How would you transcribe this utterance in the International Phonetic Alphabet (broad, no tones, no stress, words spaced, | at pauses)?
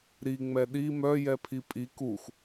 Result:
ɾiŋ͡mɛ ɗi mœjɛpʰi pʼi kux